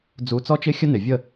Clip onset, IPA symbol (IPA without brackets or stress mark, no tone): d͡z